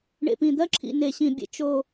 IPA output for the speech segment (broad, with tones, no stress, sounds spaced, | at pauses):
ɳ ḛ˨ p ĩ˨ d̪ ɜ˦ ǁʰ ḭ˨ n e˨ ɕ ĩ˨ bʲ ḛ˨ t͡ʃ o˨